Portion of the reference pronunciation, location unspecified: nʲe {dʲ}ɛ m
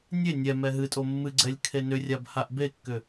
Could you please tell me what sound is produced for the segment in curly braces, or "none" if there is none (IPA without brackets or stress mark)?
nʲ